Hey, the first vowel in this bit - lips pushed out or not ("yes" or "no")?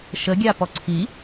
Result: no